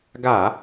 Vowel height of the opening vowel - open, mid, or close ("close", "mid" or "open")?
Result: open